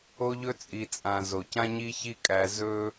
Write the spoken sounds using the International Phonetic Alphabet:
o˦ ʎ ɵ˦ t͡sʼ i˨ t͡sʼ ã˨ z o˨ c ã˦ ɲ i˦ ç i˦ kʼ æ˧ z ɵ˦

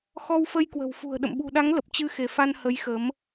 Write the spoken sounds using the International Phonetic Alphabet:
x ɔ˧ w f ə˧ j k w ə̤˨˩ w f ṳ˨˩ ə̯ ɗ ə̰˧˨ m ɓ ṳ˨˩ ɗ a˨˦ ŋ l ə˨˩ p̚ t͡ɕ ɨ˧ x e˧˩ f a˧ n h ə˨˦ j x ə˨˦ m

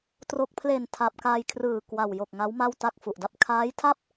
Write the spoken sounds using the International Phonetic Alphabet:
t r o˨˩ k̚ pʰ l e˨˩ n tʰ a˨˩ p̚ k a˧ j kʰ r ɯː˨˩ k w a˨˩ w j o˨˩ k̚ ŋ a˦˥ w m a˥˩ w t a˥˩ k̚ f u˨˩ ʔ d a˥˩ p̚ kʰ aː˦˥ j tʰ a˥˩ p̚

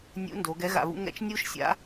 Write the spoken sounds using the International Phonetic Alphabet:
nʲ ṵ˧˥ n d o˩˧ ɡ ɛ˧˥ ɣ a̰˧ β ṵ˥ ŋ ɛ̰˥ t͡ʃ nʲ u˥ ʃ sʲ a̰˧˥

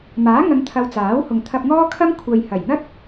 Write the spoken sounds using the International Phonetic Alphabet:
m aː˨˥ ŋ ɐ˨˧ ŋ t̪ʰ ɐ˨ w t͡s aː˨˥ w h ʊ˨ ŋ t̪ʰ ɐ˧ p̚ ŋ ɔː˥ kʰ ɐ˥ m kʷʰ ɐ˨ j h ɐ˨˩ j n̪ ɐ˥ t̚

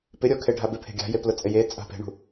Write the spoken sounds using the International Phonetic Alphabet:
p ɪ ɾʲ ɔ kʰ e ɖʱ a b ɪ pʰ e̤ ɡʲ a̤ j e p l ʊ t͡sʼ ɪ j e t͡sʼ a̤ p e̤ ɳ ṳ

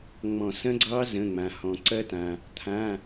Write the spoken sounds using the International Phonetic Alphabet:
ŋ͡m ɔ̃˧˩˧ s ɐ̃˦˥ ɡ͡ǀ ɑ˦˥ z ə̃˩˧˩ ŋ͡m ã˩ h ɔ̃˩ ǀ ɐ˦˥ t ã˩ | t̪ʰ ã˩˧˩

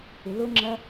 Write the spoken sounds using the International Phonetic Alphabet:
ɪ l ʊ ŋ͡ǁ ɐ

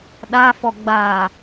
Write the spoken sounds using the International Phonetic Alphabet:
ɗ a f ɔ ɡ͡b a

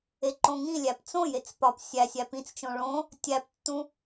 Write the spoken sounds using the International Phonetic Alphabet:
e ǃ õ ŋ ĩ lʲ æ p t͡s õ j e t͡s p ɒ p sʲ æ sʲ æ p ĩ t͡s t͡ʃ õ ɭ õ | tʲ æ p tː ũ

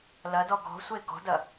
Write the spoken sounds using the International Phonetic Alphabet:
l ɐ d ɔ ɡ ɔ̤ sʷ e ɡ ɔ̤ d ɐ

